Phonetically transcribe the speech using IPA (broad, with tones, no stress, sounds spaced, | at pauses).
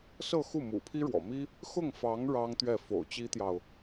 s ɤ˥˧ x u˥˩ m ṵ˨˩ pʰ i˥ ɻ w ɔ̰˨˩ m i˥ | x ʊ˥˩ ŋ f ɑ˧˥ ŋ ɻ ɑ˥ ŋ t̪ ɥ ɛ˥˩ f o̰˨˩ ʊ̯ t͡ɕ i˥ t̪ j ɑ˨ ʊ̯